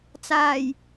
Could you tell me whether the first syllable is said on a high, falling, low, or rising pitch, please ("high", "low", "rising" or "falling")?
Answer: low